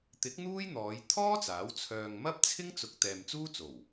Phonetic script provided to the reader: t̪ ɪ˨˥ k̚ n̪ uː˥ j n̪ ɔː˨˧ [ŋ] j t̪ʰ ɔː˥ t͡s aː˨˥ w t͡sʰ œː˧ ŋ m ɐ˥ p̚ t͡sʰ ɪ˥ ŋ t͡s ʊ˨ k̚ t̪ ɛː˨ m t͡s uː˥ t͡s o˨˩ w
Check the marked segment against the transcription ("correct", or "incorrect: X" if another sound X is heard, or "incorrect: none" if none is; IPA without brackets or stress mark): incorrect: none